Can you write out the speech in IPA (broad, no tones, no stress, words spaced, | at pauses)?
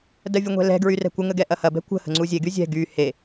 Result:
dɜvʲuŋʷɛ̤lɛ̤ ɡɹyrɛ̤kʷə ŋəɡɛʔɐhɐ bɛ̤kʷə̤ hə̤ŋ͡ǀuzʲe ɡyzʲɛ̤ ɡy he